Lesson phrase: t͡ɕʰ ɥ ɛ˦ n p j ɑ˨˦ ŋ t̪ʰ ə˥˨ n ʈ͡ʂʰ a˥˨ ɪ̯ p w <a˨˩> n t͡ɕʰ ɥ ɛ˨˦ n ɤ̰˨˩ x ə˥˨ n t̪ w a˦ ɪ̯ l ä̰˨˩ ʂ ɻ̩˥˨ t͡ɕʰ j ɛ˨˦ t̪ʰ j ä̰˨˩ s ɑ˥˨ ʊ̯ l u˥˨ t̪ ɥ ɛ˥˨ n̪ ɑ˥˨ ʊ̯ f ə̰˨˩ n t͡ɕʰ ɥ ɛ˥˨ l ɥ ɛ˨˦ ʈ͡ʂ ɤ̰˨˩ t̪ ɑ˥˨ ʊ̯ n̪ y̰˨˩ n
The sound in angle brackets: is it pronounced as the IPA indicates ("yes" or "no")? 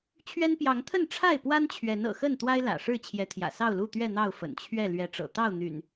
no